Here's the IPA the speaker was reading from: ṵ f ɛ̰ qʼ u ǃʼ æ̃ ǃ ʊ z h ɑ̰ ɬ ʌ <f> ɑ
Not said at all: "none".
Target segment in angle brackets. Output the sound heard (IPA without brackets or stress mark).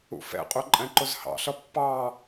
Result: pː